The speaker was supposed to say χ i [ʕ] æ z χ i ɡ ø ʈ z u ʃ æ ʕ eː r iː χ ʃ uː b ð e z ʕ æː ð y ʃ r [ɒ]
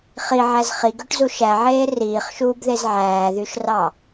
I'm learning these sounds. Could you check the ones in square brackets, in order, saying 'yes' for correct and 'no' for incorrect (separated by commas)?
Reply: yes, no